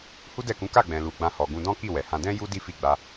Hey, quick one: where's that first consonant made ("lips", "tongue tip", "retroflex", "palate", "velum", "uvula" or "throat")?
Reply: throat